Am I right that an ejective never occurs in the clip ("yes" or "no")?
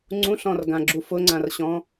yes